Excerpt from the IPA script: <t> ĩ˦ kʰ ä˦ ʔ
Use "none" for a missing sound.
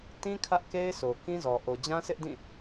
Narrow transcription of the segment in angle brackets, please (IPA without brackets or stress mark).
t